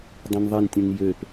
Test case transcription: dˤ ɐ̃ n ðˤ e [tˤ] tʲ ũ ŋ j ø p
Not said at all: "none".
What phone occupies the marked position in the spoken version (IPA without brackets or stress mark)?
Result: n